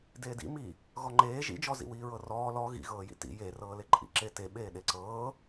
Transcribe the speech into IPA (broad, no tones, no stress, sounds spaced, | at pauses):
d eː d ḭ m i | ɣ ɔ ŋ͡ǃ eː ʒ ḭ d͡ʒ ɔ z ḭ w iː ɹ ɤ r ɔː l ɔ ɣ ḭ ɣ ɤː j ḭ t ḭ j e r ɤː l e ǃʼ ḭ ǁ e t e ɓ eː ɗ e ǀ ɤː